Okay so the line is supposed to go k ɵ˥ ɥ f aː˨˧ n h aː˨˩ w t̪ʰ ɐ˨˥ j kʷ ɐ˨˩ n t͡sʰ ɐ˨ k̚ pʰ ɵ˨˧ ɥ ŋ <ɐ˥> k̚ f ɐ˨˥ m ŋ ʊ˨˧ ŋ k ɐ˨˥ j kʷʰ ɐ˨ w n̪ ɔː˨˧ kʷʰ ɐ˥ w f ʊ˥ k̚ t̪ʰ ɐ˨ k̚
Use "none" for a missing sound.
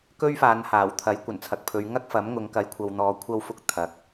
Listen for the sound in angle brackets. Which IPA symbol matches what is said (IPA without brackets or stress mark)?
ɐ˥